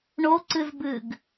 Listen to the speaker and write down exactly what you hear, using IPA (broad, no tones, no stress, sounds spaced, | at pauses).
ɳ o ǀ ɨ z b ɨ ɡ